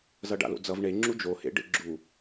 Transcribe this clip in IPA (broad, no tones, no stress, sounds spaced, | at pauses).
z ʌ ɖ a̰ l o̰ d͡z ʌ v ɳ e ŋ͡ǁ u d͡ʒ o h ḛ ɖ ḛ ɡ͡ǁ u